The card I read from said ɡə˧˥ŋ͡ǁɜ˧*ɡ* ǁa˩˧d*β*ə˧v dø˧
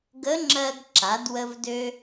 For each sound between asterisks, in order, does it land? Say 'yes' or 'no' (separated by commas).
yes, no